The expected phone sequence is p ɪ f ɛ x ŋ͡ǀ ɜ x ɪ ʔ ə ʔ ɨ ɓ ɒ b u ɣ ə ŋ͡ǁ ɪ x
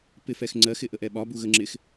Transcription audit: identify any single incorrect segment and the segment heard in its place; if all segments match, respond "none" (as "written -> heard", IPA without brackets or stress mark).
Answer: ɨ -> ɛ